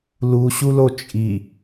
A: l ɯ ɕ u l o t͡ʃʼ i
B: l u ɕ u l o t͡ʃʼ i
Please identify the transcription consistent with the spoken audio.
B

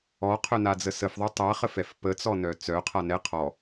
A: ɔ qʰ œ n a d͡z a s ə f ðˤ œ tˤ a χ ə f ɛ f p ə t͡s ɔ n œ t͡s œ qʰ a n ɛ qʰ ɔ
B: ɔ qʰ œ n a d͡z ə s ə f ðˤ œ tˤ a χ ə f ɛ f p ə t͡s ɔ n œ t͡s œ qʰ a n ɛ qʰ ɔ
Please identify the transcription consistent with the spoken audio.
B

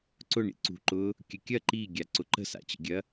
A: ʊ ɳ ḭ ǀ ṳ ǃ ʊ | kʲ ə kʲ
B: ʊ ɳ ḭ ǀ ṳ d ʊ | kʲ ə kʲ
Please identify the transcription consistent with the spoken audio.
A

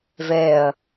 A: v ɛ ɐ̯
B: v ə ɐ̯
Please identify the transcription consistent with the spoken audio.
A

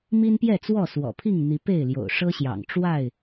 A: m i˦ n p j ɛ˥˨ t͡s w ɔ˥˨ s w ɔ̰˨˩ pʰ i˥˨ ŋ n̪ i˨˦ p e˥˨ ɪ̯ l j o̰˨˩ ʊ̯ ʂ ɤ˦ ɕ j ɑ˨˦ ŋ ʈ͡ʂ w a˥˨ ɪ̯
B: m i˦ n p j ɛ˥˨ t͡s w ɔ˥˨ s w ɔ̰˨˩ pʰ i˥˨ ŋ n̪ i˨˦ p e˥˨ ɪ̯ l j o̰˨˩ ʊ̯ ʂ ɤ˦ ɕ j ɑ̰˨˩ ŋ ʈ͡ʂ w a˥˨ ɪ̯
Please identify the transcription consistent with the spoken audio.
B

